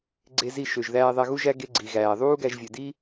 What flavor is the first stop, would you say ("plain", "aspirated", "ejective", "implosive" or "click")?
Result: click